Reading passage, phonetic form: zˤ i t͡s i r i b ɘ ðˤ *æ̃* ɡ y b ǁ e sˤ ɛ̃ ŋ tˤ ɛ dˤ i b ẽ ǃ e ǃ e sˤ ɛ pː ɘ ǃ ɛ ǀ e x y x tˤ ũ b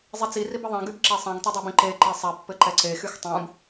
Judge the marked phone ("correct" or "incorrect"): incorrect